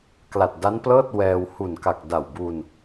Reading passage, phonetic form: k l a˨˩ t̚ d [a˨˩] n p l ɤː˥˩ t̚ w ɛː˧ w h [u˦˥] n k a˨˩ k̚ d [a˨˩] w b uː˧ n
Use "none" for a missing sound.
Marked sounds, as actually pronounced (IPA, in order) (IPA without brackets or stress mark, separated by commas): a˦˥, u˨˩, a˨˩